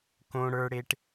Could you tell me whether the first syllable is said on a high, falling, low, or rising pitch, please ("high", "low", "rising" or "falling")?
high